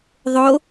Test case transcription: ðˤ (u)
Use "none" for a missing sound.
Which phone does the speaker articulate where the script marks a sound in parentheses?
o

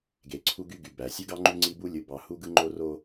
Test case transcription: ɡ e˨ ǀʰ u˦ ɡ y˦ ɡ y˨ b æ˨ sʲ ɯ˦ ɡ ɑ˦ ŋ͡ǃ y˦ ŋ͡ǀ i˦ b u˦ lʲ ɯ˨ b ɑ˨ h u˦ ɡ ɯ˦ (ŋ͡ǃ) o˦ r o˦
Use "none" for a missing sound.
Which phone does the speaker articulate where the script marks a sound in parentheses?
ŋ͡ǃ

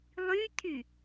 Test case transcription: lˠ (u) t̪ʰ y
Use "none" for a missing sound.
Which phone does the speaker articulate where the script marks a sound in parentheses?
y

